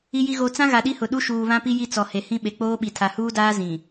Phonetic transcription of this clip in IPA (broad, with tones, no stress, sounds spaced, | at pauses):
i˨ j i˨ ɣ o˨ t͡s ã˦ ɣ a˨ ɗ i˦ h ʊ˨ ɗ u˦ ʃ uː˨ β ã˦ p i˦ j i˦ t͡s ɔ˨ h e˨ h ĩ˦ ɓ e˨ k͡p oː˦ ɓ i˨ tʰ a˨ h uː˦ d aː˦ z ĩ˨